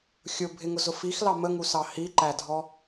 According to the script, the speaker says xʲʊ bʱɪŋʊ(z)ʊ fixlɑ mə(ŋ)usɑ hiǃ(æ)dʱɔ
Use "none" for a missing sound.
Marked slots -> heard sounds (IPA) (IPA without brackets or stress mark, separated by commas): z, ŋ, æ